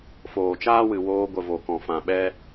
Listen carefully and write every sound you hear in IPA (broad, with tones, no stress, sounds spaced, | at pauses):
f oː˨ t͡ʃ aː˦ w ɨ˨ w oː˧ ɡʷ ə˨ v o˨ k ɔ̃˨ f ã˨ ɓ ɛ˦